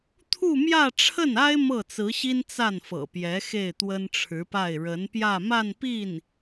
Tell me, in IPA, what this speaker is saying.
t̪ʰ u˥˧ m j ä˥˧ ʈ͡ʂʰ ə˥˩ n a˥ ɪ̯ m ɤ˥˩ t͡s ɹ̩˧˥ ɕ i˥ n t͡s a˥˩ n f ɤ̰˨˩ p j ɛ˧˥ x e˥˩ ɪ̯ t̪ w ə˥ n ʈ͡ʂʰ ɻ̩˧˥ p a˥˩ ɪ̯ ɻ ə˧˥ n p j ä˥˧ m a˥˧ n p i˥˩ n

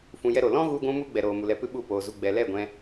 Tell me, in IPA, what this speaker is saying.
f ũ˧ j ɛ˦ ɾ o˨ l ɔ̃˦ ɣ u˧ ɡʷ ũ˧ m u˧ ɡ͡b ɛ˨ ɾ oː˨ m u˨ l ɛ˧ p ɨ˦ ɓ u˦˨ p oː˨ z u˧ ɡ͡b ɛ˨ l ɛ˦˨ ɡʷ ɛ̃˧

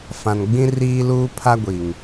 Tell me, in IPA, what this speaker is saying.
f ã˨ n ɡ͡b ĩ˦ r iː˦ l uː˦ pʰ a˦ ɡʷ i˨ ŋ

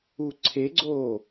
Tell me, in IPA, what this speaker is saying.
u ǀʰ e ɡ͡ǀ oː

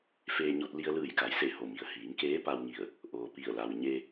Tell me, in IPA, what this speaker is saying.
f eː˧ ɲ o˧ t̚ l i˧ ə̯ l ɯː˧˩ j k a˩˧ j s e˧˩ h o˧˩ m i˩ ə̯ h iː˩˧ ŋ k eː˧˥ p a˧ w ŋ i˧˩ ə̯ | ʔ oː˩ p i˧˩ ə̯ l a˩ w ɲ e˧

